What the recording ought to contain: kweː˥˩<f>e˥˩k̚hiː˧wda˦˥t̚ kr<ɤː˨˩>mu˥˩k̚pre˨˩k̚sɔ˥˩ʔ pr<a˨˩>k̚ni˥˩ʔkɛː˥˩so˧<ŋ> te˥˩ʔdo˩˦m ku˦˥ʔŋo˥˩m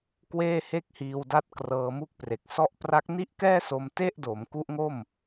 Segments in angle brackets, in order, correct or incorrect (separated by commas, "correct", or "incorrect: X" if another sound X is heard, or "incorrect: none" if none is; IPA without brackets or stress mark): incorrect: h, incorrect: ɤː˧, incorrect: a˦˥, incorrect: m